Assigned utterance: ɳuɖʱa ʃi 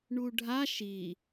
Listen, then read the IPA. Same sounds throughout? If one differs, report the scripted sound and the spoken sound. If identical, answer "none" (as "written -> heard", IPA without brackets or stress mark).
none